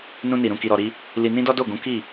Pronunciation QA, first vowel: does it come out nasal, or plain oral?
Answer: nasal